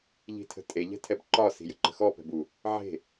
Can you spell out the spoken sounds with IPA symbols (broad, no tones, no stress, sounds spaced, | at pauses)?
ʎ i̤ tʰ ə̤ tʼ e ʎ ɛ̤ tʰ ɛ b ǃ ɒ s i̤ j ə̤ ǃ ə̤ x ɔ p ɛ̤ b u | ʕ e̤